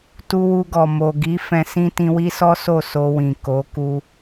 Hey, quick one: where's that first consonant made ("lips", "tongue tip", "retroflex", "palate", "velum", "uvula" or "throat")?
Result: tongue tip